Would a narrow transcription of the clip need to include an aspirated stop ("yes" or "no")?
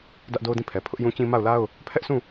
yes